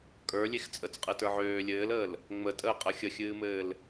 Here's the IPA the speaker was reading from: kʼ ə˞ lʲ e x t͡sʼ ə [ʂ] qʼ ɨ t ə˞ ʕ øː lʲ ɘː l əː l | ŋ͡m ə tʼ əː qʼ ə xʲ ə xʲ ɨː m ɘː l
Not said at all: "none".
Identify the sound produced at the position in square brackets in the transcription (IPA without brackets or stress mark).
t͡s